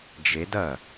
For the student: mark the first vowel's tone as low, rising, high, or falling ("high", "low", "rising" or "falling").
rising